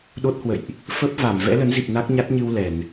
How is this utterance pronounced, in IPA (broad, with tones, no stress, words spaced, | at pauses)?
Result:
ɗo˦˥t̚hwə̰˧˨jʔ | fə˦˥p̚va˧˩m vɛ̰˧˥lə˨˦nzi˨˩p̚ na˦˥k̚ɲa˦˥t̚ɲɨ˧w lɛ˧˩˨n